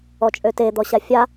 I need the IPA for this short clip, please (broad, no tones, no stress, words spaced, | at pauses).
ɔt͡ʃʼøte d̪ɔɕafʲa